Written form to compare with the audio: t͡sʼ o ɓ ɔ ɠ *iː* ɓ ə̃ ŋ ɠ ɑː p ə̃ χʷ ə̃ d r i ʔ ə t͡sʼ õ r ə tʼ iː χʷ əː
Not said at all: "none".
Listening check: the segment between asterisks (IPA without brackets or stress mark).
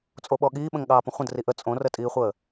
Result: iː